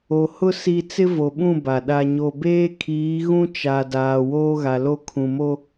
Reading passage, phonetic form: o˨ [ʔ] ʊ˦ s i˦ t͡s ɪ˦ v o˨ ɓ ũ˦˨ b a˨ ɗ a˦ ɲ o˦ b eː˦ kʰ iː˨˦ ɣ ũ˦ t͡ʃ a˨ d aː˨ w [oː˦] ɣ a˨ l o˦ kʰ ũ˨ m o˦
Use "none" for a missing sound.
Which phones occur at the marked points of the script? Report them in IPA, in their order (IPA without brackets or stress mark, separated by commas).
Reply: h, oː˦